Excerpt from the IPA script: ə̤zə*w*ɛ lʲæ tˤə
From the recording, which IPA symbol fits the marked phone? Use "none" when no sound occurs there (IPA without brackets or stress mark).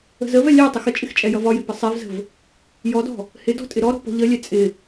v